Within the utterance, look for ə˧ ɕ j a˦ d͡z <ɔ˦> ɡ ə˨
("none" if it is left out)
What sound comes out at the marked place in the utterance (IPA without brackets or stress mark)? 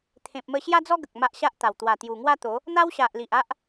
ɔ˦